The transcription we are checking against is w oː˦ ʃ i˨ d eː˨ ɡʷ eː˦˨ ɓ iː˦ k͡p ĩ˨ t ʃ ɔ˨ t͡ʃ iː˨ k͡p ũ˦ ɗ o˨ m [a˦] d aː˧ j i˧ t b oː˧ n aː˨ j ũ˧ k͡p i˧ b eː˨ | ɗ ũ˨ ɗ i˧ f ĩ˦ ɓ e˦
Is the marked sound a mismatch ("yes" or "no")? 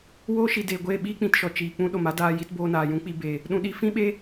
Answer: no